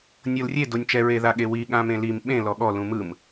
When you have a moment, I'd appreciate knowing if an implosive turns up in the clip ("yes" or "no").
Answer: yes